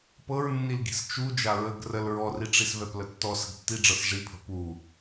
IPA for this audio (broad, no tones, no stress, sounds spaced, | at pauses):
p ɤ ɹ nː i l ɡ i̤ s t͡ʃ u d͡ʒ a ɹ ə ɡ r ə l ɹ ɔ r i ʈ͡ʂ i s v ɛ p l ə tː ɔ s ə̤ ɡ tː i ɖ͡ʐ ɤ s ʐ i pʰ ə̤ p u